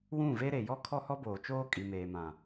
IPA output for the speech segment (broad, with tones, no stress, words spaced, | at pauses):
wũ˦˨ve˦ɾe˨ jɔ˦kʰɔ˦hɔ˦boː˨ t͡ʃoː˦kʼi˨meː˨mã˨